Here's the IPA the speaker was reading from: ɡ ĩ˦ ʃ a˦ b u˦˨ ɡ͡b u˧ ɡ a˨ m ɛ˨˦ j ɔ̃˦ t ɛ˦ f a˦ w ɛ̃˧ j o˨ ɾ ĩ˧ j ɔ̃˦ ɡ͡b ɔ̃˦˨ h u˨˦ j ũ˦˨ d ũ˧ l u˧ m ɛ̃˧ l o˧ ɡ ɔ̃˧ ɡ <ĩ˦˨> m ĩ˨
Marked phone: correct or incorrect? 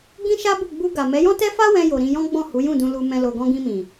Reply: incorrect